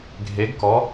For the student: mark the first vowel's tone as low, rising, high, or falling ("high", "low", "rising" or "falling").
rising